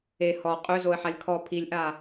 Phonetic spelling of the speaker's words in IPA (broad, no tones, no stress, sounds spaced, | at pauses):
e h ɔ qʼ ø z o ə̯ ħ a lʲ kʰ ɔ pʰ i lʲ ʔ a